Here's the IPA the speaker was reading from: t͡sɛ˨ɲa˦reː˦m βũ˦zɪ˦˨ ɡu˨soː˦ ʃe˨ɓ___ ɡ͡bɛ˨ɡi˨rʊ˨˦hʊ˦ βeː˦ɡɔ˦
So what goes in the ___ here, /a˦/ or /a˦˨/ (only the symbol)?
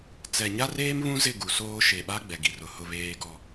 a˦